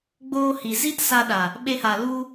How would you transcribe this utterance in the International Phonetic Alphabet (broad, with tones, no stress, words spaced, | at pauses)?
ɡ͡boː˧hi˨ zi˦tsa˧ɗa˨ | ɓe˧ha˨ lu˦